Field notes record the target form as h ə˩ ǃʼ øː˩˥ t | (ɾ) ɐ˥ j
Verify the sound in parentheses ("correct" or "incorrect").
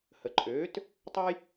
incorrect